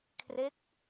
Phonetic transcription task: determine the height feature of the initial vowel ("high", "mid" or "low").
mid